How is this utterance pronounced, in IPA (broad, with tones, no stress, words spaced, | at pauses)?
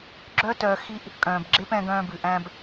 ɡ͡ǁœ˦ tœː˧ xi˦ʔ | kʼœ̃ː˨bɡ͡ǁe˦pɛ̃˧ ɡœ̃ː˧bʉ˨ʔæ̃˧b